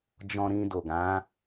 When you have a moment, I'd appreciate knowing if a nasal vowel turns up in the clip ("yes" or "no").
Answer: yes